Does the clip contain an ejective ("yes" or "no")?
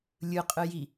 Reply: yes